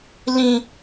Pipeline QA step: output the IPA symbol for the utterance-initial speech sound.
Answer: l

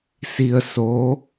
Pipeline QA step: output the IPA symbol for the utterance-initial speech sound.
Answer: s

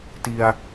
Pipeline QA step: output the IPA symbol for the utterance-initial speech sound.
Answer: t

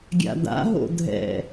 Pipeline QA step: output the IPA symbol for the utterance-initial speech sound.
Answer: ɡʲ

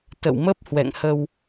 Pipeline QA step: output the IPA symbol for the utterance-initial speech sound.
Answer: t̪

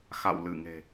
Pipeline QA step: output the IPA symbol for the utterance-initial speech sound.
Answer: x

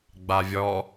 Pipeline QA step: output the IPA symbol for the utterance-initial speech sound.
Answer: ɡ͡b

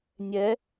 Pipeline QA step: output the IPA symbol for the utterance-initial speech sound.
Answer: nʲ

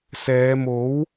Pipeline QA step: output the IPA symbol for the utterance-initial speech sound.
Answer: s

